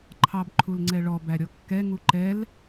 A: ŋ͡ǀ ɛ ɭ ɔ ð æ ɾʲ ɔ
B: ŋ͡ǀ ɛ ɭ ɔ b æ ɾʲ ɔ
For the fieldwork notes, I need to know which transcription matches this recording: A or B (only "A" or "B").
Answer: B